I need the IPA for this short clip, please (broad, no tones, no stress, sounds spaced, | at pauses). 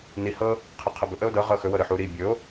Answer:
n i h ɤ | qʰ ɤ qʰ ɤ b ɵ ʔ ə o̯ d ɤ ʁ ɤ x ɵ w ɤ ɾ ɯ ħ u ɾ i bʲ ɵ o̯